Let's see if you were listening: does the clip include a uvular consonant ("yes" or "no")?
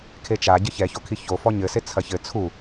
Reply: no